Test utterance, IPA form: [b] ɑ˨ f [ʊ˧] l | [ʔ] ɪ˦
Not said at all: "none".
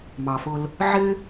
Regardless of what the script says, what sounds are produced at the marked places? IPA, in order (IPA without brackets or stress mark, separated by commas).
m, ʊ˧, ʕ